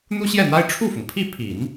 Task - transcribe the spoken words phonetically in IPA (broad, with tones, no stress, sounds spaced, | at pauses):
n̪ u˥ ɕ j ɛ˥˩ n̪ a˥ ɪ̯ ʈ͡ʂʰ u˥˩ f ʊ˩ ŋ pʰ i˥˩ pʰ i˨˩˦ n